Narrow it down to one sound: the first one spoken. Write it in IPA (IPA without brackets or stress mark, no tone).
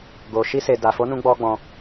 ɡ